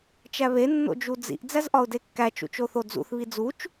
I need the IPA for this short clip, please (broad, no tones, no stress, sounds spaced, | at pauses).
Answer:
t͡ʃ æ β e nː o̰ d͡ʒ u d͡z ḭ ʔ d͡z æ z ʔ ɒ ʊ̯ d e kː æ t͡ʃ ṵ t͡ʃ o θ o d͡z ṵ θ β i d͡z u t͡ʃ